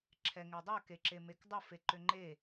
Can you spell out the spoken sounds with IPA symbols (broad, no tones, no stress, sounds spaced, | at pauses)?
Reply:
ǁʰ ɛ ŋ e dˤ œ k e ǁ e m e k dˤ ə f e ǃ ʏ ŋ͡ǃ e